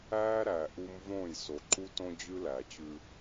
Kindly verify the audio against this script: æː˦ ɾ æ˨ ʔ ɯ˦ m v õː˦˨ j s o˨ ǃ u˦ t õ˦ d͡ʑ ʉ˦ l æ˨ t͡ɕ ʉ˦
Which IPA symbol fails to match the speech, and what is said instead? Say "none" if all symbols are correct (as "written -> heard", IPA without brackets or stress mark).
ɯ˦ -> u˦